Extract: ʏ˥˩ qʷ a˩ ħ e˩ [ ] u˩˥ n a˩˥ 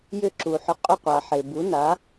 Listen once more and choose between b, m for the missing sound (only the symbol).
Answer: b